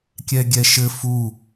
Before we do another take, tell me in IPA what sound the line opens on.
kʲ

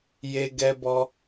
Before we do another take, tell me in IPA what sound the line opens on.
j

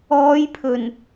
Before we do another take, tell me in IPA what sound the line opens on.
ɔː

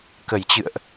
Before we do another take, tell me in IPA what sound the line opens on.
k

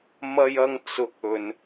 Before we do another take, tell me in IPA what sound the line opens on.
m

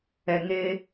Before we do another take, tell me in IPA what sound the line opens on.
ɛ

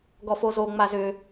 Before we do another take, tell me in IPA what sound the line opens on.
ɡ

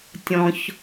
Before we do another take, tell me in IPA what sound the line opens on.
tʲ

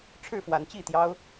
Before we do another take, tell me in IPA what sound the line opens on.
ʈ͡ʂʰ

